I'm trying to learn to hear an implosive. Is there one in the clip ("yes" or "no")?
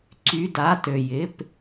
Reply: no